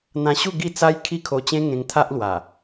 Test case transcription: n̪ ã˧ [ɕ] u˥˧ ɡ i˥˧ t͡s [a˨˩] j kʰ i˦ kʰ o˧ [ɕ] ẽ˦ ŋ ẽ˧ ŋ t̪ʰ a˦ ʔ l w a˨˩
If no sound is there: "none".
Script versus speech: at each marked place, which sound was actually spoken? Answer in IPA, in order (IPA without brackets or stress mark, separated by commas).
ɕ, a˦, t͡ɕ